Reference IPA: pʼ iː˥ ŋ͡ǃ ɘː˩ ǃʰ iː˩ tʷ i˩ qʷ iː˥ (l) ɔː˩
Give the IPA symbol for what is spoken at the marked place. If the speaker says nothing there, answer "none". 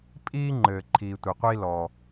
l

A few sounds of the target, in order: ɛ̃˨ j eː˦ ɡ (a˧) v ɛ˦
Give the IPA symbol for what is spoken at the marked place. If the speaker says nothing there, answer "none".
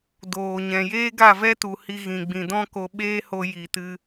a˦˨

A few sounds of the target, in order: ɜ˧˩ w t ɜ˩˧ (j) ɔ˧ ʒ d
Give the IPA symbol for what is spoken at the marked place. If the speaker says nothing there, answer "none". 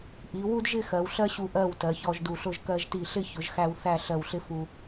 ç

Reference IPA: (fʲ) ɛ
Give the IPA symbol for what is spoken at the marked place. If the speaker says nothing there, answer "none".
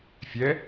fʲ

